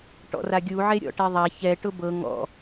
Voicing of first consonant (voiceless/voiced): voiceless